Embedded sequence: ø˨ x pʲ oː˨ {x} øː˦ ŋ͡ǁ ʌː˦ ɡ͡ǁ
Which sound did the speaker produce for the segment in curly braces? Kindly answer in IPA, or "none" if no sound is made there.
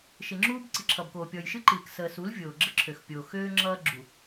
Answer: x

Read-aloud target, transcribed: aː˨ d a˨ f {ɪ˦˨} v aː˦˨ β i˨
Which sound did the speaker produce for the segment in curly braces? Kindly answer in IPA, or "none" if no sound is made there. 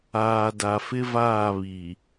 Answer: ɪ˦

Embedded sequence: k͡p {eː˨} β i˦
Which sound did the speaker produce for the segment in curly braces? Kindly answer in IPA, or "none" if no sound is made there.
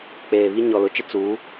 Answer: eː˨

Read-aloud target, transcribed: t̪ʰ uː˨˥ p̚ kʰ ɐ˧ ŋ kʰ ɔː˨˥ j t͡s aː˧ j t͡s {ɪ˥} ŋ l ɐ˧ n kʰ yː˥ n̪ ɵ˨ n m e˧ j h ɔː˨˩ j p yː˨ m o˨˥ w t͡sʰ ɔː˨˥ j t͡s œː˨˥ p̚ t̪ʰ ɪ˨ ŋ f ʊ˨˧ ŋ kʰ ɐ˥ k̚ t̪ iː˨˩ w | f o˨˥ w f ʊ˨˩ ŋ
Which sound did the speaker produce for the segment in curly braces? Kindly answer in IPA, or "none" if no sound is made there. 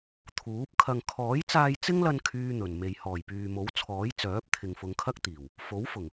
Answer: ɪ˥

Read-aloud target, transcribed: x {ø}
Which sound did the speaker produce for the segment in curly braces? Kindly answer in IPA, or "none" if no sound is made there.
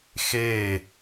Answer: e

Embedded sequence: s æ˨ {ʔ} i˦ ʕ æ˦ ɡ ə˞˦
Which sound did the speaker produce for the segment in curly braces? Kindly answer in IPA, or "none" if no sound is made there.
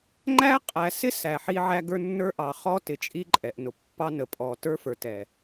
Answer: ħ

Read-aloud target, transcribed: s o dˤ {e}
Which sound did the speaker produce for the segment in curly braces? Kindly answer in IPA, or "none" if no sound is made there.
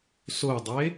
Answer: e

